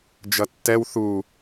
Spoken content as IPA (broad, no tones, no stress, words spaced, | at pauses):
d͡ʒʌtːɛw θu